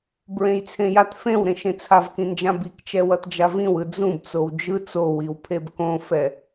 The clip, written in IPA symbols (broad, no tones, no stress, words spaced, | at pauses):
bɹẽjt͡sʰẽjat fẽwɾẽ ʃẽt͡sʰavkĩnd͡ʒã bikt͡ʃɛ wʌtd͡ʒavĩwɯ d͡zũb t͡sowd͡ʒɯ t͡sowiwpʰeb kõfɛ